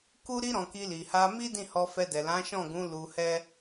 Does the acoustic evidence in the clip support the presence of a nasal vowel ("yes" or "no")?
yes